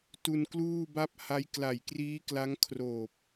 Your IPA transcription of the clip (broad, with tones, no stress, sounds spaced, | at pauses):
t u˧ n k l uː˥˩ b a˥˩ p̚ h a˦˥ j k l a˨˩ j k r iː˦˥ k l a˦˥ ŋ kʰ r oː˨˩ p̚